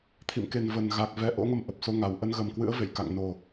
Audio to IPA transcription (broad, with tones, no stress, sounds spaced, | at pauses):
t̪ʰ ḭ˧˨ m k e˨˩ n v ə˨˩ n ɣ a˨˩ k̚ v ɛ˨˦ ʔ o̰˧˥ ŋ ə˧ m ʔ ə˨˩ p̚ s o˧ ŋ a˧˩ w ʔ ə˧ n ɣ ə˨˩ m k w ɨ̰˧˥ ə̯ v ḛ˧˨ j k a̰˧˨ ŋ n o˨˩